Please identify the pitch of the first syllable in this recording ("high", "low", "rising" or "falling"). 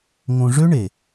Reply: low